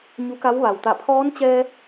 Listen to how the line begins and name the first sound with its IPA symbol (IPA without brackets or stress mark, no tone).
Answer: ɲ